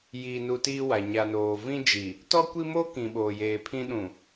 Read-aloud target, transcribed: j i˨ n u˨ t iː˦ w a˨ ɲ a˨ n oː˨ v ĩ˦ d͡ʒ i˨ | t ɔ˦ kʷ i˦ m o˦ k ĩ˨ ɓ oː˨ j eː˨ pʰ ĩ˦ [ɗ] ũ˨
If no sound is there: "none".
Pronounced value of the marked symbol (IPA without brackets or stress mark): ɗ